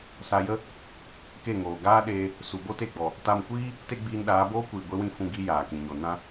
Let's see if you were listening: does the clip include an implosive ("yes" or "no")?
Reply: yes